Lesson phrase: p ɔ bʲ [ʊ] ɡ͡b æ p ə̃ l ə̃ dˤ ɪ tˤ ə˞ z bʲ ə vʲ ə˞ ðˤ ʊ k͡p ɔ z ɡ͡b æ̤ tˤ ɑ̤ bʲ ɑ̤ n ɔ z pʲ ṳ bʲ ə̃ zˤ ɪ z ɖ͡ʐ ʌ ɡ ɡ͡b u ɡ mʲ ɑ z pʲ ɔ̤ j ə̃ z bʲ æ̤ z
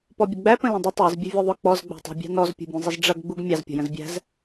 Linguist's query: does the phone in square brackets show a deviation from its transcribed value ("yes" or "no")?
yes